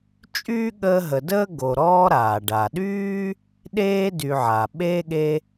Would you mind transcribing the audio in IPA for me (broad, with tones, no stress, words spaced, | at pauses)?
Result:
t͡ʃʼyː˥ɠəː˦ɦə˨dəː˥ ɡo˨ɾɔː˥ɾaː˩ ɖa˩ɗyː˥ | ɗeː˥dy˨ʕa˩ ɓeː˥ɠe˦